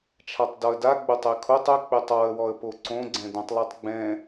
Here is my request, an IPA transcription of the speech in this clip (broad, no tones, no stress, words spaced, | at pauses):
t͡ʃʰatˤdɔə̯da ɡ͡bʊtˤekʰotˤ ʊ k͡petˤɔə̯ wɔə̯poǀõ ɡ͡ǀɛ̃dõtˤlˠɛtˤɡ͡bɛ̃